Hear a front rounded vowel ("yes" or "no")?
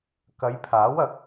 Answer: no